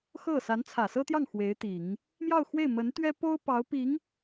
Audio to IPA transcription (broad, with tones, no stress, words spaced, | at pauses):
xɤ˥˩ sa˧˥nt͡sʰä˨˩sɤ˥t̪jɑ˥˩ŋ xwe˧˥ɪ̯t̪i˨˩˦ŋ | mjɑ˥˧ʊ̯xwe˥˩ɪ̯mə˧˥nt̪ɥɛ˥ po˥ʊ̯ pɑ˧˥ʊ̯pi˧˥ŋ